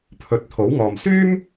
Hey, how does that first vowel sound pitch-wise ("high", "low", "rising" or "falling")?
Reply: rising